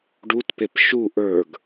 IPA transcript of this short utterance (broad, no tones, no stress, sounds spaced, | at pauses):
ɖ u t p e p ʃ u ʔ ə˞ ɡ